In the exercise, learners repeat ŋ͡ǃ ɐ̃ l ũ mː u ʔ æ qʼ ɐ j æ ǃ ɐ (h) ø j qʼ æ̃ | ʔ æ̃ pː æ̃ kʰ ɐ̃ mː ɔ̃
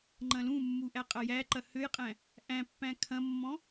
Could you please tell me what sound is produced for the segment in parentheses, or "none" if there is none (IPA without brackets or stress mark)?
h